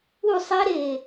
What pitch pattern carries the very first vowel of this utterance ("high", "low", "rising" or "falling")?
falling